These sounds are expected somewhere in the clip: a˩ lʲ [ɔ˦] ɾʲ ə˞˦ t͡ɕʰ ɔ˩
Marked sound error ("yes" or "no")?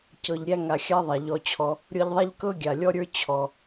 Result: no